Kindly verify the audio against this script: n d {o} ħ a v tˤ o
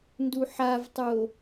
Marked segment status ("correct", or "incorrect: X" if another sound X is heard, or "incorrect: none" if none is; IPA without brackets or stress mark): incorrect: u